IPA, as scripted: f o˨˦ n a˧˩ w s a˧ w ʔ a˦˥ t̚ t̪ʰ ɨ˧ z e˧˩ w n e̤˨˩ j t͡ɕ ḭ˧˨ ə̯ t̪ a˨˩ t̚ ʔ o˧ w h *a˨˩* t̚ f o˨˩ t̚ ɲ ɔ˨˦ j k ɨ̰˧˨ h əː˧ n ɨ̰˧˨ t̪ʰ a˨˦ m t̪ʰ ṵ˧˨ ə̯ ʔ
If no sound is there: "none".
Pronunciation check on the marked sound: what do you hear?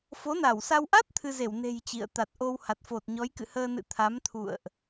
a˨˩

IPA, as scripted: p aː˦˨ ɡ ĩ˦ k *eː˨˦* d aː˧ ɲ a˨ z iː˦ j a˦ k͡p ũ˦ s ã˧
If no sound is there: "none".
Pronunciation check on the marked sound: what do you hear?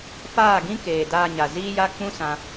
eː˨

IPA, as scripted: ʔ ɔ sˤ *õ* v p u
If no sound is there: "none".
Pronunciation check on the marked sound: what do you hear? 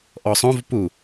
õ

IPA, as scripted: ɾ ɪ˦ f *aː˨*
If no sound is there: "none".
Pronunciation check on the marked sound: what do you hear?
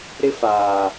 aː˨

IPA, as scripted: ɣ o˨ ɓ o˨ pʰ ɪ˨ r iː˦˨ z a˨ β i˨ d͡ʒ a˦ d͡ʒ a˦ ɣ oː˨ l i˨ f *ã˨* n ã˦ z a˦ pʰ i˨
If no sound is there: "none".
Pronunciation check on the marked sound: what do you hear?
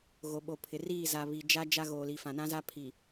ã˨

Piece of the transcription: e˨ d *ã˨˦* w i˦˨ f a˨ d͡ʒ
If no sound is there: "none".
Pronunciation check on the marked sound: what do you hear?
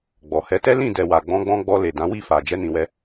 ã˨˦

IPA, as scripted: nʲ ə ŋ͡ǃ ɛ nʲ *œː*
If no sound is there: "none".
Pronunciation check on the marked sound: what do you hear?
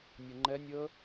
əː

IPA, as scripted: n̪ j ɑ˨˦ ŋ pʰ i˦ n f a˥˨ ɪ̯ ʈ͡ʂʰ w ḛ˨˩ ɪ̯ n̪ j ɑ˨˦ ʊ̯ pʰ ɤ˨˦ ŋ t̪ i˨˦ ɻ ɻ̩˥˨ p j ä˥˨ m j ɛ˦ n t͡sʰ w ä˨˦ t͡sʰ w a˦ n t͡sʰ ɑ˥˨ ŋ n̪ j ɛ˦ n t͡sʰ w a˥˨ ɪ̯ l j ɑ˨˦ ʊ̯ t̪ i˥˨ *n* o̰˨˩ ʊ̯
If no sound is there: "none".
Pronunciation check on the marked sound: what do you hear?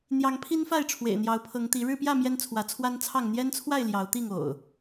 ŋ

